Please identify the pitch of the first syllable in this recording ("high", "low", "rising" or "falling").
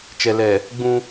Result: low